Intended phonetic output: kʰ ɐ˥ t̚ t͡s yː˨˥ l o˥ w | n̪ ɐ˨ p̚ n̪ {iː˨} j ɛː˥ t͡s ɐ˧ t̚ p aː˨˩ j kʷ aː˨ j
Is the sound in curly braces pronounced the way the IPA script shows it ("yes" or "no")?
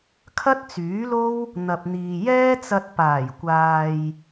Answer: yes